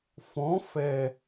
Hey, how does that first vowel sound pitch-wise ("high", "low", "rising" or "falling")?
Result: rising